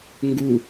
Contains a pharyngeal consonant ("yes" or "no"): no